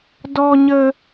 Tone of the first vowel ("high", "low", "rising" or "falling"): low